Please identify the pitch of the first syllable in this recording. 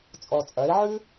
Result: low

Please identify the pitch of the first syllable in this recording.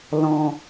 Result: low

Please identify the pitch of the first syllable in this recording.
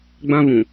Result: high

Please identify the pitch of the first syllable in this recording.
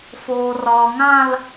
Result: low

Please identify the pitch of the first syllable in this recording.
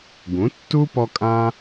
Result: rising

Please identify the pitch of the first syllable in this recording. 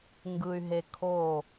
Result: low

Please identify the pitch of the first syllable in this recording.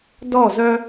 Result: falling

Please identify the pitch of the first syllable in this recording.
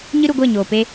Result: high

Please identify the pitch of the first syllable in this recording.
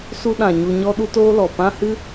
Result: high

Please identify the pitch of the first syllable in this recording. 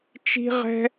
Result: high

